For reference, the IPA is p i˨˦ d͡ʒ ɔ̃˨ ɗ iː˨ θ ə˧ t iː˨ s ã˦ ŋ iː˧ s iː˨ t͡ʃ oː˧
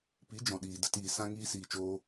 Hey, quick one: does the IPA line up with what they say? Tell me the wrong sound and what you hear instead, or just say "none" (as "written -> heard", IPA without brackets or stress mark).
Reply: θ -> d